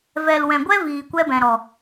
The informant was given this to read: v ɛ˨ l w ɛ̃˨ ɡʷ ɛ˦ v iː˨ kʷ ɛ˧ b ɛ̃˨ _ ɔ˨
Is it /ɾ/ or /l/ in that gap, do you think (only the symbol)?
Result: ɾ